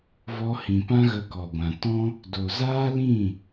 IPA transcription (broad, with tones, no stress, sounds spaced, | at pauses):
v ɔ˧ h ĩ˨ p ã˦ ɣ ə˧ k ɔ˨ ɡʷ ã˨ t ɔ̃˦ | d o˨ z aː˦ l ĩ˦˨